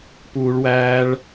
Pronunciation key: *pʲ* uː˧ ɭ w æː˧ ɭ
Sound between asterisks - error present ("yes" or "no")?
yes